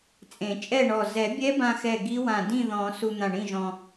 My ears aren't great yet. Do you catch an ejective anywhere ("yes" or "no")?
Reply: yes